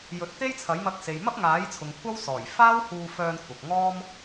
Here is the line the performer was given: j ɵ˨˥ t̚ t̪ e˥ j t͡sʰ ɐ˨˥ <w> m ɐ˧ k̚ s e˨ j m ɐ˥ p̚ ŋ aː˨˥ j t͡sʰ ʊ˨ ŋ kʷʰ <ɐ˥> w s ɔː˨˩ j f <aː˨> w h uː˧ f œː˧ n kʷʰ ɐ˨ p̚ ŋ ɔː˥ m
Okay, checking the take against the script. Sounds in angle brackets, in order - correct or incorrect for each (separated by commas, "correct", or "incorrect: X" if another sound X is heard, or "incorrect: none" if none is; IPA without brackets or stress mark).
incorrect: j, correct, incorrect: aː˥